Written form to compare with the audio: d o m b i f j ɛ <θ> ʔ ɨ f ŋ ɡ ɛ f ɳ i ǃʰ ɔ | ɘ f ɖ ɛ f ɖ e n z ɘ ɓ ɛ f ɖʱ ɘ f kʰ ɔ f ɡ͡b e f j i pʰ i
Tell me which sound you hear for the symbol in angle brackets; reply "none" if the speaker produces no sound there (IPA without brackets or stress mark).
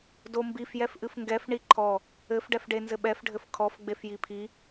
f